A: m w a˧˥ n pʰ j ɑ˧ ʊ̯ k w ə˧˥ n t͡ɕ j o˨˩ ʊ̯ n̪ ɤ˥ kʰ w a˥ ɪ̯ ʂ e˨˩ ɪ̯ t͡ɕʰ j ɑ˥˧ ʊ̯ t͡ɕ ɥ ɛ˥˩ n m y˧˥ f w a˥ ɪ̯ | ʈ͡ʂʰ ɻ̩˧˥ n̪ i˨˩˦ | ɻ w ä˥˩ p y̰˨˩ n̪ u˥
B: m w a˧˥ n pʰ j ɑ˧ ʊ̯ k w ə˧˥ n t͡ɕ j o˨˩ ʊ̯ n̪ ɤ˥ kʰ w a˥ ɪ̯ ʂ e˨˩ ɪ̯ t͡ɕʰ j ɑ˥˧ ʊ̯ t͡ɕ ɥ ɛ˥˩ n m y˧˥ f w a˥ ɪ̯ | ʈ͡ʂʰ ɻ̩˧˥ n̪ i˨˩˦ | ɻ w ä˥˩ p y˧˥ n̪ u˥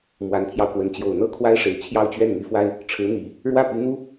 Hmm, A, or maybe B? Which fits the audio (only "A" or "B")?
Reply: B